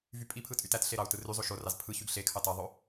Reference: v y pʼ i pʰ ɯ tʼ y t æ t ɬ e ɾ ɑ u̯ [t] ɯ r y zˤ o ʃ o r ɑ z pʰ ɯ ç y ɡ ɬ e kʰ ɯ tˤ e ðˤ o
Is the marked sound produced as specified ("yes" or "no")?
yes